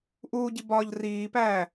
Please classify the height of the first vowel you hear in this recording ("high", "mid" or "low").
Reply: high